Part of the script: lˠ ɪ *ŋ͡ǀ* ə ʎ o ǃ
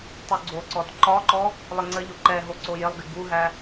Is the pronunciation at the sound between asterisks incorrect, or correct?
correct